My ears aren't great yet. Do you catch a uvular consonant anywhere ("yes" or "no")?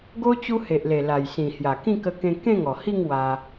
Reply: no